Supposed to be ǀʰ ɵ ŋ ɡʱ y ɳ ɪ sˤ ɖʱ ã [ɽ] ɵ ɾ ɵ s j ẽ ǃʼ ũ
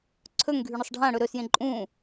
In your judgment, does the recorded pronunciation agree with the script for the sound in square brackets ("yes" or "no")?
yes